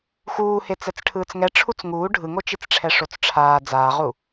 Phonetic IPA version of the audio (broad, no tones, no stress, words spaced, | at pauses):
xuːhe t͡sɛt͡sʈʰɯːt͡sŋɛ ʈ͡ʂʰut͡sŋuː ɖʱɯŋot͡ʃit͡sʈ͡ʂʰɛ ʂot͡sʈ͡ʂʰaː d͡zaːʁu